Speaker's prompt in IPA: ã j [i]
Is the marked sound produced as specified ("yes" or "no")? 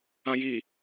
yes